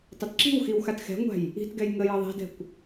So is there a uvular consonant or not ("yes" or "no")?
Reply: no